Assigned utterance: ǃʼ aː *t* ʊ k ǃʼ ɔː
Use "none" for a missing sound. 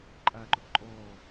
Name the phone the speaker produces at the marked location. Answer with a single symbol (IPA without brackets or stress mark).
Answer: ǃ